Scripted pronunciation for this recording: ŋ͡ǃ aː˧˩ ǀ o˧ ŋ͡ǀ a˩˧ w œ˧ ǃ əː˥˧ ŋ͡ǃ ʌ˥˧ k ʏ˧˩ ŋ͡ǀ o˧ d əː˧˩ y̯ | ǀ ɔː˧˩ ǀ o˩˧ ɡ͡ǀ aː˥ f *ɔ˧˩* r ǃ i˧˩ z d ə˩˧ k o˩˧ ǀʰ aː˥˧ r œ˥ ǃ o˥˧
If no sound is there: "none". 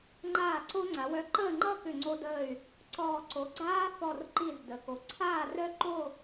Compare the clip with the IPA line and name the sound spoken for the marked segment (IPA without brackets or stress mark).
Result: ɔ˧˩